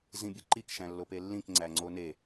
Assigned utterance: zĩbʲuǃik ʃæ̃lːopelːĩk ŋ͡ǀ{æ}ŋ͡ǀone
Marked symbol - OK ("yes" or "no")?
yes